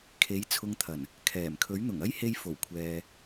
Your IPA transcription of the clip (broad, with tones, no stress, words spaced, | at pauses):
kʰe˨˥jt͡sʰʊ˧ŋt̪ʰɐ˨˩n | kʰɛː˨˩mkʰɵ˨˥ɥ n̪ʊ˨˩ŋɐ˥jhe˧j fo˨˩w kʷʰɛː˨